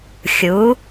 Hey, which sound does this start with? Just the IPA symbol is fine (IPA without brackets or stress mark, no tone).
xʲ